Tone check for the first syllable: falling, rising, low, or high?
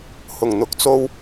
low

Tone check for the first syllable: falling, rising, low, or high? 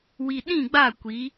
low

